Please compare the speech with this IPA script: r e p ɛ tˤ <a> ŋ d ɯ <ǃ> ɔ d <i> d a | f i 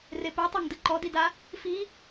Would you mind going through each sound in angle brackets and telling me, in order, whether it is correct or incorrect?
correct, correct, correct

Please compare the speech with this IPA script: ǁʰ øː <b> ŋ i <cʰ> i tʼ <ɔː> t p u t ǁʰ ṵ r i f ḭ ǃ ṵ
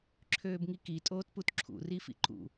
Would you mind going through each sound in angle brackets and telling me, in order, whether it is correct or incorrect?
correct, incorrect, incorrect

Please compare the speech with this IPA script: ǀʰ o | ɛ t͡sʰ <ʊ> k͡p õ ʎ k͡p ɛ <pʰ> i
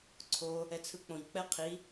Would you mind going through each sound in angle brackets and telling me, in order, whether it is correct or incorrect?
incorrect, incorrect

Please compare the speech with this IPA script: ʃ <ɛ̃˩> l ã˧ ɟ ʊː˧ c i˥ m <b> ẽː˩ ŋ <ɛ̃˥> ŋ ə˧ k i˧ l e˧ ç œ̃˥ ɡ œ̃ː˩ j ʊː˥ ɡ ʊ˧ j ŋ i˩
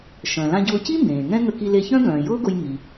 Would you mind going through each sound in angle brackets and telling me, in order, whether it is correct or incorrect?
incorrect, correct, correct

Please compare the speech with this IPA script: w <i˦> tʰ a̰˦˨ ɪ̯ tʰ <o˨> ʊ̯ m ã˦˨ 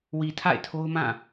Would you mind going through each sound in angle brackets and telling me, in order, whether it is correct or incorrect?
incorrect, incorrect

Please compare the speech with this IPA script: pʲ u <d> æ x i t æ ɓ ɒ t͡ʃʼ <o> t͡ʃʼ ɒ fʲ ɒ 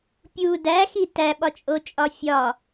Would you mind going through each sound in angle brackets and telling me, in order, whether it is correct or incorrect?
correct, correct

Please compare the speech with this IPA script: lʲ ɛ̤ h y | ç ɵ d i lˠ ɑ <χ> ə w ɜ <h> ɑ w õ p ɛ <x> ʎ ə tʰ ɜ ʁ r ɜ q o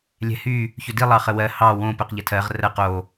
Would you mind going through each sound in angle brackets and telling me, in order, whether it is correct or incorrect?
correct, correct, incorrect

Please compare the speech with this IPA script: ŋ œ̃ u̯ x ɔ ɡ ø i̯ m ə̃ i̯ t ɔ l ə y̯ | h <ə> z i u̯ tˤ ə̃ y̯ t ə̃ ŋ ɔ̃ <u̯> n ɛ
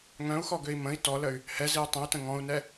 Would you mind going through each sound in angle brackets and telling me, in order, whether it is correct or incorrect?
incorrect, correct

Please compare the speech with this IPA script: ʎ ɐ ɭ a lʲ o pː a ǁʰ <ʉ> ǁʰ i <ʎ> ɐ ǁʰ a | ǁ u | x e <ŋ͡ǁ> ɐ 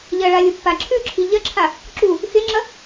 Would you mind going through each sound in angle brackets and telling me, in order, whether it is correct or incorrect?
correct, correct, correct

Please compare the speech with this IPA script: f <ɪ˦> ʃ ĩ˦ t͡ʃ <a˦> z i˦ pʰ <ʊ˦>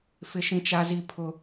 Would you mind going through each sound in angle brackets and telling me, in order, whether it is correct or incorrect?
correct, correct, correct

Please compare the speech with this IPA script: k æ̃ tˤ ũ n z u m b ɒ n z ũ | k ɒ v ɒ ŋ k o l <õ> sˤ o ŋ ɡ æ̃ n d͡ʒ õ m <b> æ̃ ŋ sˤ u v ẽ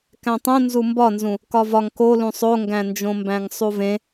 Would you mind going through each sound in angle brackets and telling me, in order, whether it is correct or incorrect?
incorrect, correct

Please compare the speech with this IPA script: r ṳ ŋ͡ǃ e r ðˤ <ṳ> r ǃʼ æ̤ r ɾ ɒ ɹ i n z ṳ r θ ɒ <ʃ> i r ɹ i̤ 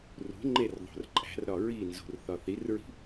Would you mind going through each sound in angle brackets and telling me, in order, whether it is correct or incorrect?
incorrect, incorrect

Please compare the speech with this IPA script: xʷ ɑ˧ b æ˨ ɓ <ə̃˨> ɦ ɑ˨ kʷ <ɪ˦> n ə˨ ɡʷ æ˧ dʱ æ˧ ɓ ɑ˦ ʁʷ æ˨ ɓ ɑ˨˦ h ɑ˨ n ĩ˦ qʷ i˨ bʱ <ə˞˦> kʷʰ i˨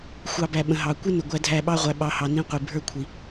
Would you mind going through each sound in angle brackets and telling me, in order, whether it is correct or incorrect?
correct, correct, correct

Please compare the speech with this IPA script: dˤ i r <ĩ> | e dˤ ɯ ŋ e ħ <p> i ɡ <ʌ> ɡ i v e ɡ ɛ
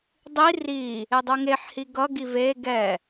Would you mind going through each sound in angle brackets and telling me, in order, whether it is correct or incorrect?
incorrect, incorrect, correct

